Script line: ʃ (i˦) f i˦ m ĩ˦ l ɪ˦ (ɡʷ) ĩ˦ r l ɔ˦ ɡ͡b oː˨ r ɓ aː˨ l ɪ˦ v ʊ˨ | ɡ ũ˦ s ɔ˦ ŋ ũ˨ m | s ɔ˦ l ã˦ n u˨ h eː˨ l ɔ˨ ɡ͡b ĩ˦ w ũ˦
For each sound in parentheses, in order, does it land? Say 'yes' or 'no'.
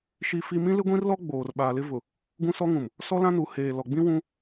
yes, yes

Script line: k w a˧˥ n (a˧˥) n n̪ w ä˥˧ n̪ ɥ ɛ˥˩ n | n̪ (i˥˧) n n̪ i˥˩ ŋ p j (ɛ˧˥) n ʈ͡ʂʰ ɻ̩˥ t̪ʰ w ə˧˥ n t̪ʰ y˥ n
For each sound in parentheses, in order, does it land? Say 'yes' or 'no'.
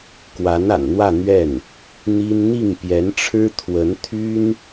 no, no, yes

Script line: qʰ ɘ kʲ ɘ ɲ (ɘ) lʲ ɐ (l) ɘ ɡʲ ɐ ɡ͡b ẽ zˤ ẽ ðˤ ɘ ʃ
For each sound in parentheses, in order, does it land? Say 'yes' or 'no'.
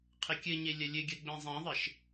no, no

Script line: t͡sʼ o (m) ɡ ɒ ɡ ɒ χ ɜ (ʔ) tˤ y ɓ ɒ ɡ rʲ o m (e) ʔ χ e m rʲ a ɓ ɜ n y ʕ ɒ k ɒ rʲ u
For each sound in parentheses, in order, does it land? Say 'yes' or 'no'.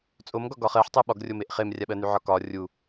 yes, no, yes

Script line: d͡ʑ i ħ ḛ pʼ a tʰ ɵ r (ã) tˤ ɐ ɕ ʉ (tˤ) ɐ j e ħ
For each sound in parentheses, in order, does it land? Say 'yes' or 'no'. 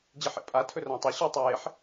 yes, yes

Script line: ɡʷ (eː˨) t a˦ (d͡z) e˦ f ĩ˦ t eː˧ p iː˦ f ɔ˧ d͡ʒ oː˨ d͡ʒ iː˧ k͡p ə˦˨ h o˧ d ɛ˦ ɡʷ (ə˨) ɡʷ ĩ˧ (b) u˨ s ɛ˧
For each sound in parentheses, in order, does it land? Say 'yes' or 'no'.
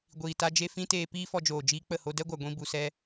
no, no, no, yes

